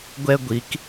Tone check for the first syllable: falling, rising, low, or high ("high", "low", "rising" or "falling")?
high